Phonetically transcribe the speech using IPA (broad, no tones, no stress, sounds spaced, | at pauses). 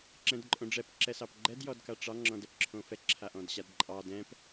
ǁ ɛ̃ d ǃʼ õ ɖ͡ʐ ɛ p ǁ ɛ s ɑ p ɡ͡ǃ ɛ d j ɔ d k a ʈ͡ʂ ɑ ŋ͡ǁ ɔ̃ d ɛ p ǁʰ õ f ɛ ǁʰ a ʔ ɔ̃ d ɕ a d ǃʼ ɑ d ɛ̃ p